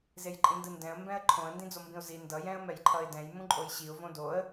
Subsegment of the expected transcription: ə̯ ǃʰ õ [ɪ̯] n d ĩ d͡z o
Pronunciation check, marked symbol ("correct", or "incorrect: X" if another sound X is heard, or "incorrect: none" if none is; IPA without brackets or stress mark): incorrect: ə̯